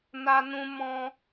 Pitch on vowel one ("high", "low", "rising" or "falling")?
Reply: high